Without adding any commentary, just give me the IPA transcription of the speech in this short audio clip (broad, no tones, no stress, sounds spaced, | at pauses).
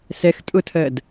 s ɛ x tʼ ʊ tʰ ɜ d